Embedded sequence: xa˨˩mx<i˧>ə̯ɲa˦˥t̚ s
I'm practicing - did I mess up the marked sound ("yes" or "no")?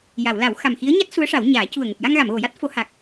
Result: yes